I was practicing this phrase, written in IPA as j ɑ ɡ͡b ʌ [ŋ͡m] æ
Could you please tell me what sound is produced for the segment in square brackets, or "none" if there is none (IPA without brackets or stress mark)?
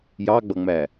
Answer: ŋ͡m